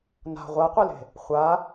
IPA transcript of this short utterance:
n a̤ ʁʷ a qʷ i l e̤ | χʷ a

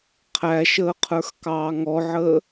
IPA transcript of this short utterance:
qʰ æ ʃ əː qʰ ə˞ x k ɑː ŋ ɔ ʕ əː

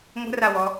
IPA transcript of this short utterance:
ŋʷ ə̤ r a w ɔ

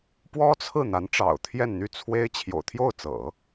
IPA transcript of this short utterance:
p w ɔ˥ t͡sʰ ɹ̩˥˩ n̪ a˧˥ n ʈ͡ʂ ɑ̰˨˩ ʊ̯ t̪ʰ j ɛ˥˧ n n̪ y˥˩ t͡sʰ w e˥ ɪ̯ t͡ɕʰ j o̰˨˩ ʊ̯ t̪ʰ j o˥˩ ʊ̯ t͡s ɤ̰˨˩˦

